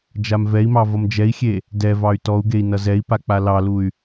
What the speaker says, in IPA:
d͡ʒ a m v ɛ i̯ m ɑ v ʌ m d͡ʒ ɛ i̯ xʲ e | d ɛ v ɑ y̯ t ɔ u̯ ɡ e i̯ n ʌ z ɛ i̯ p a k͡p a l ɑ l u y̯

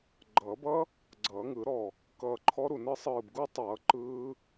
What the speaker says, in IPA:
ɡ͡ǃ ʌː˨˩˦ b ʌ˦˥ | ɡ͡ǀ ʌː˨˩˦ ŋ ɯ˨˩˦ ɾ ɔ˧˩ | k ʌː˧˩ ǃʰ ɔ˦˥ ɾ u˧˩ n ɯ˦˥ sˤ ɯː˧˩ b ɡ u˦˥ tˤ ʌː˨˩˦ ǃ ɯː˦˥

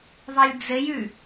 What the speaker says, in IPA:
ðˤ ɛ lʲ d͡z ɘ j ʉ

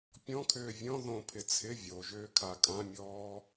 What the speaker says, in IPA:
pʲ ɔ̃ kʰ ʏː vʲ ɔ̃ ð õ pʰ ɪ t͡sʰ ɪ vʲ o ʒ ʏː kʰ a kʼ ã mʲ ɔː

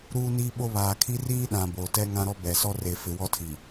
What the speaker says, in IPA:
ɾ uː˦ n iː˦ ɓ o˦ β aː˨ kʰ i˦ r iː˦ ɗ ã˨ b oː˨ t ɛ˦ ŋ ã˦ ɾ ɔ˦ b ɛ˨ s ɔ˦ r e˨ f ɪ˨ w ɔ˦ tʰ i˨

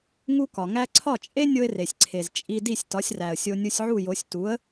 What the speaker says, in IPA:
ŋ u˥ k ɒ˩ ŋ æ˥ ǀʰ ɒ˥˩ t͡ʃʼ e˥ nʲ o˥ ɪ̯ r e˩ sʲ ǀʰ e˩ z t͡ʃʼ i˧ d i˥˩ sʲ t ɒ˩˥ sʲ r æ˩ ə̯ sʲ o˧ nʲ u˧ sʲ ʕ u˥˩ j o˩˥ sʲ t u˩˥ ə̯

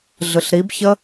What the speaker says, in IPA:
ɮ ɯ ɬ ɾ i b ç ə

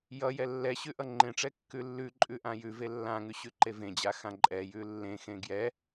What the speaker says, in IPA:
j ʌ j ɛ lː ɛ ɕ ʉ ʔ ʌ ŋ͡ǃ ẽ ʈ͡ʂ ɛ kː ʉ lː ʉ ǃʼ ʉ ʔ ã j ʉ v e lː ã ŋ ʉ ɕ ʉ ǃ e v ẽ d͡ʑ a x ã ǃʼ ɛ j ʉ lː ẽ x ẽ ɡ j ɛ

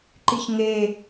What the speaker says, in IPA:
ǃ i ç ŋ e

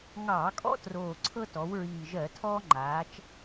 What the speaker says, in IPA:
ŋ ɑː˧˩˧ kʼ ɔ̰˦ t r oː˨˩ ǀʰ ɤ˦ t ɔ˩˧ w ɹ iː˨˩ ʒ ɜ˧˩˧ tʰ ɔː˦ ŋ͡ǃ aː˩˧ t͡ʃ

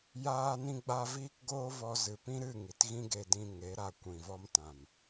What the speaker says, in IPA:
j aː˧ n ĩ˧ ɡ͡b a˧ v iː˦ k ɡ oː˦ v ɔ˧ z ɨ˨ p ĩ˦ ɾ ɨ˦˨ ŋ i˨ t ɣ ĩ˦ ɡ e˧ d ĩ˧ ŋ e˨˦ ɾ a˧ kʷ ĩ˨ v ɔ˦ m t ã˨ m

